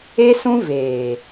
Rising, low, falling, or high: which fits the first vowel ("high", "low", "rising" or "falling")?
high